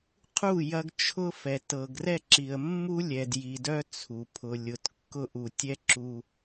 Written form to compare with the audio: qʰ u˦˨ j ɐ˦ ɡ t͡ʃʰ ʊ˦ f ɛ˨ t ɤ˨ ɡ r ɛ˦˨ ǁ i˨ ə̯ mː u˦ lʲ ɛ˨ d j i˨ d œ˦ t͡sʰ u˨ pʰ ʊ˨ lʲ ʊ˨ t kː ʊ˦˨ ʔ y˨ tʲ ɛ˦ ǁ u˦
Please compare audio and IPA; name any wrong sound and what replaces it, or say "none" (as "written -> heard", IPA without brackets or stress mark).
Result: y˨ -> u˨